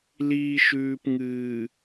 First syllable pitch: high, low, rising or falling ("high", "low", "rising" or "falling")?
low